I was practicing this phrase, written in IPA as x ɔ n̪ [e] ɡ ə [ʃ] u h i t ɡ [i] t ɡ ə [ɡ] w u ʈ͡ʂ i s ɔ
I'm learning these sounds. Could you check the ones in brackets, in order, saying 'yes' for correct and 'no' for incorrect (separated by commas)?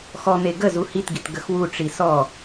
yes, no, yes, no